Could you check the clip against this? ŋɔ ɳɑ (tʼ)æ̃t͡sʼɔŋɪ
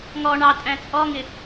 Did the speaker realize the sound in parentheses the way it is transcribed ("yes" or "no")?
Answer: yes